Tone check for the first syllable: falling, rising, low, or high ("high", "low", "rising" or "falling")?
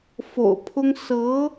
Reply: low